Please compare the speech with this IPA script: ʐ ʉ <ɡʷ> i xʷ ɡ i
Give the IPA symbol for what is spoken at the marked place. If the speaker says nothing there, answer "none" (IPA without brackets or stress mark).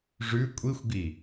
kʷʼ